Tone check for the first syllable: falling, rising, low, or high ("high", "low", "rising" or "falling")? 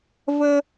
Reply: high